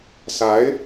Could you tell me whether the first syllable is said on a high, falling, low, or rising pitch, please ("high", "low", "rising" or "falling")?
rising